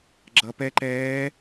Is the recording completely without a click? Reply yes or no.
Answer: no